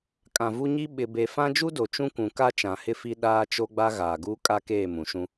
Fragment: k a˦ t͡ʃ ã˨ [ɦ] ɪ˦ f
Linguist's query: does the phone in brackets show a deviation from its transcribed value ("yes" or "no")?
yes